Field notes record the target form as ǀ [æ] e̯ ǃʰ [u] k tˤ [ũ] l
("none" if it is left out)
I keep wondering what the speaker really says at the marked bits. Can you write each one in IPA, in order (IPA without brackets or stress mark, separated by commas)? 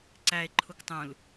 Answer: æ, u, ũ